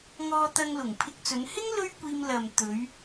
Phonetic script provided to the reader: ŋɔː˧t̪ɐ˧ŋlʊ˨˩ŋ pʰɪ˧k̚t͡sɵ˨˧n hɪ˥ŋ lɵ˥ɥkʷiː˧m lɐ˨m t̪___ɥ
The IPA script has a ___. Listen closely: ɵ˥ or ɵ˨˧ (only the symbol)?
ɵ˨˧